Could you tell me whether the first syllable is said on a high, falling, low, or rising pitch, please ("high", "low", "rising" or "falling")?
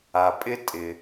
low